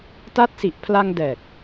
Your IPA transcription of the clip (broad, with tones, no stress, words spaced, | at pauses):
ta˦˥t̚si˨˩ʔpʰla˧ŋ dɛː˨˩k̚